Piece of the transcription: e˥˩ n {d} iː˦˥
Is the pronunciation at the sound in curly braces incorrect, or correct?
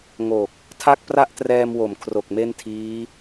incorrect